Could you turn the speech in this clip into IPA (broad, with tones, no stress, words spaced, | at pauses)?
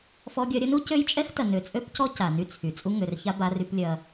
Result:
fɔ˦ɡʲɐ˦ ɾʲɐ˦nu˦ cø˦jt͡ʃʼɛ˦xtɐ˨ nø˨t͡sʼø˦pcɔ˦ ca˨ny˦t͡sʰy˨ t͡sʼu˦ŋø˨rça˦ ba˦ry˦plʲɐ˦